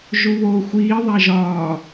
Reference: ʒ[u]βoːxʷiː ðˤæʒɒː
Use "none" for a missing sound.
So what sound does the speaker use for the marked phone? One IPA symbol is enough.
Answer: u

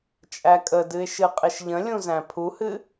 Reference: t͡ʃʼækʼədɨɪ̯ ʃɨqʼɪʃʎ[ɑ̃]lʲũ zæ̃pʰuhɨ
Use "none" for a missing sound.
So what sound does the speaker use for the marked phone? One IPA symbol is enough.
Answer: ə̃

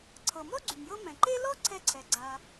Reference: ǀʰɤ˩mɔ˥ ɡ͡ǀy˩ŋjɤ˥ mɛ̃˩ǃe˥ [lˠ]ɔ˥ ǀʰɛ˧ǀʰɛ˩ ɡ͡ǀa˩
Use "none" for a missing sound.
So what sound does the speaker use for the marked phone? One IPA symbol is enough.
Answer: l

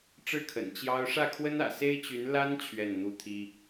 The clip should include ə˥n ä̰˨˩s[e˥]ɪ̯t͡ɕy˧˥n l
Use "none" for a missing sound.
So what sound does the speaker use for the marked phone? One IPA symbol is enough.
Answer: e˥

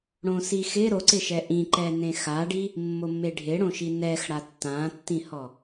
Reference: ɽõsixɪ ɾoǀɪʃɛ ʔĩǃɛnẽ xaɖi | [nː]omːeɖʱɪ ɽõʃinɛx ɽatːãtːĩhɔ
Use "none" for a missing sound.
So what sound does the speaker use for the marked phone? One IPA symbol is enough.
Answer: mː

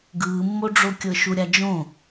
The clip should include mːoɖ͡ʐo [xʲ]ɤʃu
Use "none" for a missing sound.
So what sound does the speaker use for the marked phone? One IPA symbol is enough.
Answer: kʲ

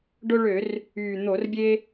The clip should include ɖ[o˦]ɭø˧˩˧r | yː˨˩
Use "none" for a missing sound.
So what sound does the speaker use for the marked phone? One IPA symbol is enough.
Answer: o˦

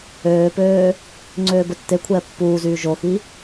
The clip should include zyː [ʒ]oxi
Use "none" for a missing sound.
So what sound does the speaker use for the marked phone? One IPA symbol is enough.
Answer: ʒ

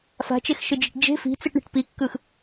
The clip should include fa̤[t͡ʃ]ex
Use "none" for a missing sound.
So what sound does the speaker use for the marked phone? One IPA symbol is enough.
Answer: t͡ʃ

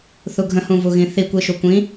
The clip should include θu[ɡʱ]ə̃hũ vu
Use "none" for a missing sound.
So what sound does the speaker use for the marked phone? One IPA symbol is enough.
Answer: ɡʱ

